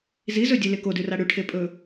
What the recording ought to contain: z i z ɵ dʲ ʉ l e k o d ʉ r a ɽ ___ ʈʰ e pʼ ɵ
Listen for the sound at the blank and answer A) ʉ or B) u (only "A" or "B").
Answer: A